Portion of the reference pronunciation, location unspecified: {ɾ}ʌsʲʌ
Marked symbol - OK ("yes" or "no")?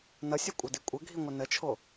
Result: no